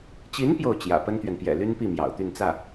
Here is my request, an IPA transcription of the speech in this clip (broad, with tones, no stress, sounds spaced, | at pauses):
t͡ɕ i˧˥ n p j o˥˩ ʊ̯ t͡ɕ j ä̰˨˩ p ə˥ n t̪ ɥ ɛ˨ n p j ɛ̰˨˩ l y˥ n p i˥˩ m j ɑ̰˨˩ ʊ̯ t̪ y˥˧ n t͡s ä˥˩